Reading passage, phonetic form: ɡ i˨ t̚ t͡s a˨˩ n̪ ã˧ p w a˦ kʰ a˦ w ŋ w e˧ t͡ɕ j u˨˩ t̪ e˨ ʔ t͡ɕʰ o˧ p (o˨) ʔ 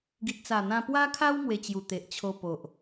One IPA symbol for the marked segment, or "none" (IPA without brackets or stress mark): o˨